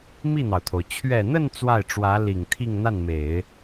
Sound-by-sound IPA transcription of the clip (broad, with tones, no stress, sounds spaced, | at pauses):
m i˥˩ n̪ ɑ˩ ʊ̯ t̪ʰ o˩ ʊ̯ t͡ɕʰ ɥ ɛ˨˩ n̪ ə˥˧ n t͡s w a˥˩ ɪ̯ ʈ͡ʂ w ä˧˥ l i˨˩ ŋ t̪ʰ i˥˧ ŋ n̪ a˥˩ n m e˨˩˦ ɪ̯